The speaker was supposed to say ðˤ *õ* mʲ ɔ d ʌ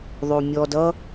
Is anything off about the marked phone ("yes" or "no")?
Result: yes